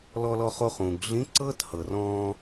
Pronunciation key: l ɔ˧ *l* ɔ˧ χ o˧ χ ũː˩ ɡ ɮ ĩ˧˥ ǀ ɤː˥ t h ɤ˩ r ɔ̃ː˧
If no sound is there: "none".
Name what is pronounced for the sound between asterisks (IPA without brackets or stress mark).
l